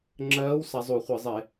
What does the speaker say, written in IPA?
ŋ͡ǁɜː˨˦w sa˨˦zˤu˧˩˧ χʷɘ˧˩˧zˤe˧˩˧

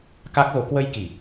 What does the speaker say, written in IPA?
ka˦˥k̚ɣo˨˦ kwə˧jki˨˩

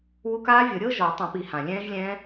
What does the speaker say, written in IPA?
wu˧˥˧kaː˦˥vʲɤ˨˩˦ɾʲɤ˦˥ ʒɔ˨˩˦tˤɛ̃˨˩˦pi˨˩˦ hã˨˩lʲɛ̃ː˦˥ʒlʲɛ̃ː˦˥

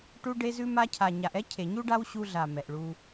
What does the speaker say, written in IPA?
ʈu˧ɖe˧zʉ˧ ma˧cʰa˨ ɲa˨ʔɛ˦ cʰe˨ɲu˦ɖa˦w ɕu˧ɮa˨ mɛ˨ʔɭu˧

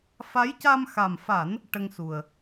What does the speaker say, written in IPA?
fa˧˥jca˧mxa˨˩mfa˨˩˦n | ʈə˧ŋsu˨˩ə̯

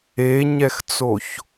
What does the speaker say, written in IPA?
eɲɛxt͡soç

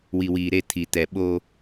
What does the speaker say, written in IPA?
wi˨wiː˨ ɾe˦˨ tʰi˨tɛ˨ ɓoː˦

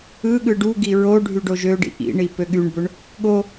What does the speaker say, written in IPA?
ɯ ɠɯɖuɡi ɹo ɖʱyɖoʒøɖḭ ʔḭɳi pøɠyɳbøɳ | ɠo

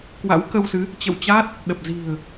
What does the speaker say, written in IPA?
kwa̰˧˥wkə˧wsɨ˨˦ | t͡ɕə̰˧˨wt͡ɕa˦˥t̚ | ɗə˨˩p̚ zi̤˨˩ə̯

